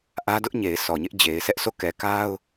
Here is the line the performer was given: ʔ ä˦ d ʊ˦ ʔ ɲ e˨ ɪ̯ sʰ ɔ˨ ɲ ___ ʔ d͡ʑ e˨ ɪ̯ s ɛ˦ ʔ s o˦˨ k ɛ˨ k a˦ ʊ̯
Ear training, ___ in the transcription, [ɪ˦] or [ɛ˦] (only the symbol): ɪ˦